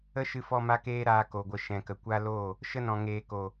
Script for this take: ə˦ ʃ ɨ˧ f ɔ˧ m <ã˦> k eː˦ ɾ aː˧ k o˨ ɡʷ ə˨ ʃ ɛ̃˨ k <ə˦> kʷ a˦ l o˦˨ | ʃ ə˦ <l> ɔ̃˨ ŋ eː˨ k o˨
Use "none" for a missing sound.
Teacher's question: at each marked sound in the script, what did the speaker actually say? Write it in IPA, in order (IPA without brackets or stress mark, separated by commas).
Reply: a˦, ə˨, n